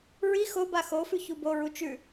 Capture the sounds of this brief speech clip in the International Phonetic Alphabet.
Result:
ɹi xoba xofʉ çuboɹu t͡ʃʉ

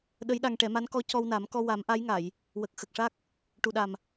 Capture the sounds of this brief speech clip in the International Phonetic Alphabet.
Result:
ɗə˧˥jɗa˧ŋʈɛ˨˩˦ma˧˥n kɔ˧˥cɔ˧wna˨˩˦mkɔ˧ wa˨˩˦mʔa˧˥jŋa˨˩˨j | wə˨˩k̚xə˨˩k̚ʂa˦˥k̚ | ʈu˨˩ɗa˨˩m

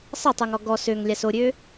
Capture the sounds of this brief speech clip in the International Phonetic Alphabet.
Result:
sˤətˤuŋɔ ɡɔs øŋlʲas oɾʲø

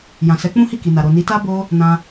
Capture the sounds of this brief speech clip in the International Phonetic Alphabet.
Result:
jã˨sɛ˨˦k͡pũ˦hi˦˨ ki˨na˨ ɾo˨ni˨˦ta˦ bo˦ | nã˧

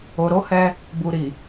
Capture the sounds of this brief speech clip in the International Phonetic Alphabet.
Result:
o˨ɾo˨˦hɛ˧ | bu˨ɾi˨

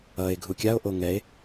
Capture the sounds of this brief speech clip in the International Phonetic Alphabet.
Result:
ʌe̯ ɡʱukʲao̯ʔo ŋɛe̯

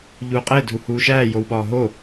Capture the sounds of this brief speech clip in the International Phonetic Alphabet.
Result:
ʎuːqʼedʱu huːʃæːjowɓɒː ɦo

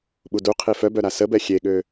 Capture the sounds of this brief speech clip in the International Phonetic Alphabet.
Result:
ɓuduqʰi fœbœ ɾasəbɛ xʲeɠø

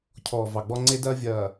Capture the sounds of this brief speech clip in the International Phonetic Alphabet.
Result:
cʰɔː˨vɑ˨ɡ͡bɔ˦ ŋ͡ǀe˦dɐː˦vʲɐː˨

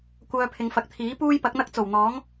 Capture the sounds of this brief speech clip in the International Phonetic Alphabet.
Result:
kʷœː˧pʰɪ˨˧ŋfɐ˨k̚t̪ʰiː˨˥ puː˥jpɐ˨˥k̚n̪ɐ˥k̚ t͡so˨˩wn̪ɔː˨˥ŋ

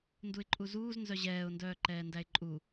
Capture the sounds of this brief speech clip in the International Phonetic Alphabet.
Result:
nduɪ̯ǃʼuzuːz nzœʑɛːʊ̯ndœː ǃɛːndæɪ̯ǃʼu

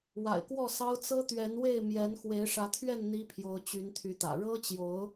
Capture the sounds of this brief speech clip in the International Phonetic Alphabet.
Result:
wa̰˨˩ɪ̯kwɔ˥˨sɑ˦ʊ̯ t͡sɤ˦t̪ɥɛ˨˦nwe˥˨ɪ̯ mjɛ˨˦n xwe˨˦ɪ̯ʂä˨˦t̪ʰɥɛ˥˨n n̪i˦pʰjo˨˦ʊ̯ t͡ɕy˨˦nt̪ʰy˨˦t̪ä̰˨˩ ɻɤ˦t͡ɕjo˨˦ʊ̯

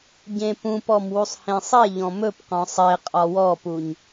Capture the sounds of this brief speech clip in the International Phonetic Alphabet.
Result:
ɟẽpũpɔm wusˤhẽsˤeʎɔ̃ mɵpqɔ̃ sˤe qʼɒwɔpuɲ

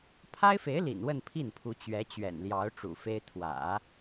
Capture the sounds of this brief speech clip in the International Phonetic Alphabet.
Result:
pʰa˥ɪ̯fe˧˥ɪ̯lḭ˨˩n wə˥˧npʰi˥˩npʰu˧˥ t͡ɕɥɛ˧˥t͡ɕɥɛ̰˨˩nljɑ˧˥ʊ̯ ʈ͡ʂṵ˨˩fe˥ɪ̯ t̪ʰwä̰˨˩˦

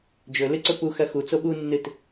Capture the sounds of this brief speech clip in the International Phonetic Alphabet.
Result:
d͡ʒɵlɨǀɵ puxɐ xu t͡soɓunːɨt

